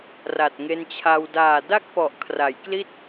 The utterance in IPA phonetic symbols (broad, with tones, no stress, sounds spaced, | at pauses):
r a˨˩ t̚ ŋ e˧ n t͡ɕʰ a˧ w d aː˨˩ d a˥˩ k̚ p ɔ˨˩ ʔ kʰ r a˩˦ j k l i˥˩ t̚